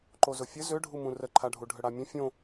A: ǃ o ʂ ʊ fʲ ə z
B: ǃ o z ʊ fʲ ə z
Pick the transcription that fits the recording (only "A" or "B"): B